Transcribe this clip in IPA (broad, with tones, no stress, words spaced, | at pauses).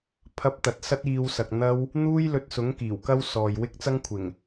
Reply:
pʰɐ˥p̚t̪ɐ˧t̚ sɐ˥t̚iː˧wsɐ˨k̚ n̪ɐ˧w | n̪uː˥jlɵ˧t̚sʊ˨˥ŋ kiː˨˩wkɐ˥w sɔː˨jwɪ˥k̚t͡sɐ˥ŋkʷʰɪ˨˩ŋ